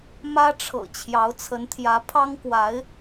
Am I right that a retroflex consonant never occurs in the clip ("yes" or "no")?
no